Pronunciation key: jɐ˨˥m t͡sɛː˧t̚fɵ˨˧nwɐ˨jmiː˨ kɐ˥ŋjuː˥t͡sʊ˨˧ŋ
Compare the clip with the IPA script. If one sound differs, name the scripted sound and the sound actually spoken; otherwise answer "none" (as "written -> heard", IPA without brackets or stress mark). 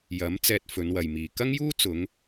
none